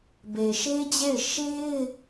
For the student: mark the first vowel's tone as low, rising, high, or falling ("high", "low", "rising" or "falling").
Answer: low